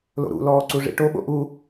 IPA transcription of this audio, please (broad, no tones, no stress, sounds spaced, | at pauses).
l o̰ ɾ ṵ l ɔː ǀ u ʐ ḭ ʈ o ɓ o̰ ʔ u